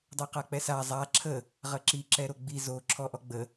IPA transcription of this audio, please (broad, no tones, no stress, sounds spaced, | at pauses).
dˤ o q a k͡p ɛ s a zˤ a ǁʰ ə | ʁ ə ǁ i ǁ ɛ ɾ o ɡ͡b i z o ǁʰ ɔ ʔ ɔ ɡ͡b ə